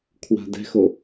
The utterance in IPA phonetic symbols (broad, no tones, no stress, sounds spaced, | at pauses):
kʰ w a̤ d ɛ̤ x o